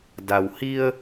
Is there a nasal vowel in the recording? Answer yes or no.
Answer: no